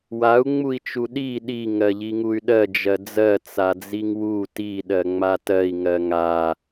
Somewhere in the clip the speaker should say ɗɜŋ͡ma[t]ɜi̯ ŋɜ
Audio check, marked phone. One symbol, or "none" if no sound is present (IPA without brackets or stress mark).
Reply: t